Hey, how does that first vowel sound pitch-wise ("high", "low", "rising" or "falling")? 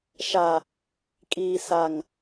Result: low